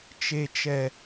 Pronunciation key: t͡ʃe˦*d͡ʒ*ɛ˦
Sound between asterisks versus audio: incorrect: t͡ʃ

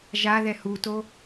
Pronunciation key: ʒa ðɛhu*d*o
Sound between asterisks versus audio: incorrect: t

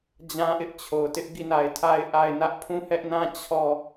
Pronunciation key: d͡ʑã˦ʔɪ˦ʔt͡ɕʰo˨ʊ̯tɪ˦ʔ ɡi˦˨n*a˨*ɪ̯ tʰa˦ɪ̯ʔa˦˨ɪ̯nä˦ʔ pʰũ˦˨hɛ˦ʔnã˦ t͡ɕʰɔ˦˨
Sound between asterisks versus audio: correct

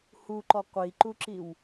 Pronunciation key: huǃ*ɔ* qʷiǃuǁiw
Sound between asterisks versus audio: correct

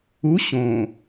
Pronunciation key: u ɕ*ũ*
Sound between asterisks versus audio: incorrect: õ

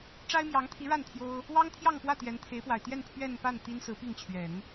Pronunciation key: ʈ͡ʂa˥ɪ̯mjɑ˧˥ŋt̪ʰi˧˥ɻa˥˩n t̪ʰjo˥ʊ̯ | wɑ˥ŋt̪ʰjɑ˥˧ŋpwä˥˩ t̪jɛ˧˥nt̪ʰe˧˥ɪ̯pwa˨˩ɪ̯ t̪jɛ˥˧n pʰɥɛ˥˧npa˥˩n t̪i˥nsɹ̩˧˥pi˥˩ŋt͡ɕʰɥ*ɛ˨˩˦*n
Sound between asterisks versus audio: correct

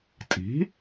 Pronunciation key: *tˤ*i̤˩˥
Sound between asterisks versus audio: incorrect: tʼ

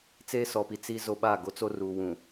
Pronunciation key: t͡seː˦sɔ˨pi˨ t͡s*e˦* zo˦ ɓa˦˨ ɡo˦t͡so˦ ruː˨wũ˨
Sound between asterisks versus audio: incorrect: i˦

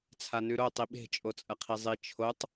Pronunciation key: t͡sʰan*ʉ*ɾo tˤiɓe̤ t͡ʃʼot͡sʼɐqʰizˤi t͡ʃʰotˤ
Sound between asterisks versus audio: correct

